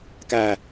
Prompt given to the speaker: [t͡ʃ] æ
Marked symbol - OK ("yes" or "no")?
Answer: no